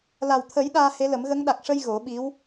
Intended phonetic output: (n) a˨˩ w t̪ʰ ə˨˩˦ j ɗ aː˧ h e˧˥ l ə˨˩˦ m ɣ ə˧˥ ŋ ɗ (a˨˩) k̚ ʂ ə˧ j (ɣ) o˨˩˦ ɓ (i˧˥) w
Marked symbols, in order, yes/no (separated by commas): no, yes, yes, yes